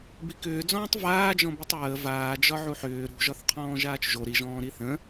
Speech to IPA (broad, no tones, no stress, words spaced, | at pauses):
bikʏːd͡zɔ̃ːtˤ vaːd͡ʒɔ̃bitˤ ɹə vaːd͡ʒɒ ʕuħʏː ɾṳʒɒθqʰɔ̃ː ʒaːt͡ʃʒo ɾiʒɔ̃ːɾi θə̃